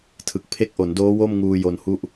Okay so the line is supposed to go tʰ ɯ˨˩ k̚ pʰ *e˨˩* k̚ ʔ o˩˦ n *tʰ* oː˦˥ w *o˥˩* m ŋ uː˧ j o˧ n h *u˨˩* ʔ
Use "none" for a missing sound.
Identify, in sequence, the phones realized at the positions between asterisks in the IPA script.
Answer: e˦˥, d, o˥˩, u˥˩

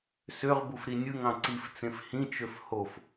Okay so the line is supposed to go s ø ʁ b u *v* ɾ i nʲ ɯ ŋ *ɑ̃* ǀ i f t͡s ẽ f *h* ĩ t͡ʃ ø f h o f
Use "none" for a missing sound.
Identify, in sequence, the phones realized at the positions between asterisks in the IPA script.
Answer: f, ɑ̃, h

